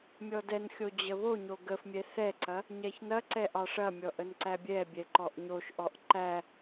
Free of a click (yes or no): no